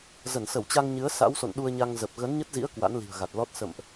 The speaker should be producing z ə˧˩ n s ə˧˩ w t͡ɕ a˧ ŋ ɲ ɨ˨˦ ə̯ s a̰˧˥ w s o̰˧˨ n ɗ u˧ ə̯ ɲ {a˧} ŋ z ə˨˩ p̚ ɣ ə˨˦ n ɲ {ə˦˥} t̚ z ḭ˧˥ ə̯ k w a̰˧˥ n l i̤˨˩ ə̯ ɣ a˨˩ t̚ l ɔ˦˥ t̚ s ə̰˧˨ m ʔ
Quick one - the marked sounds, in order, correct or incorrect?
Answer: correct, correct

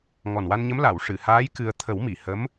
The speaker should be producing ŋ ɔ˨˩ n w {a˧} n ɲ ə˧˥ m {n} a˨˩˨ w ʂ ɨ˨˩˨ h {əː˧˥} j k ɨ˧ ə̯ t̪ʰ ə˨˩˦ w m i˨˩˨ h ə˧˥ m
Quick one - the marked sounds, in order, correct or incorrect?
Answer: correct, incorrect, incorrect

